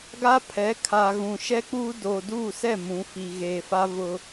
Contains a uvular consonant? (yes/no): no